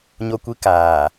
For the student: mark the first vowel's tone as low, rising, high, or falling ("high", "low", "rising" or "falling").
high